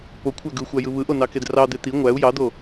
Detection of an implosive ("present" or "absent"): absent